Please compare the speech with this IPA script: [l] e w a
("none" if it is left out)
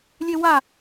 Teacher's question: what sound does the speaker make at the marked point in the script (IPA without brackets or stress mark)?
lʲ